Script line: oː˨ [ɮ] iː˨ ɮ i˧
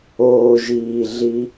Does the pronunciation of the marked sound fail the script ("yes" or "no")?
yes